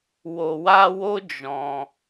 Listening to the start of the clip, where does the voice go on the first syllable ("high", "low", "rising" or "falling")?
low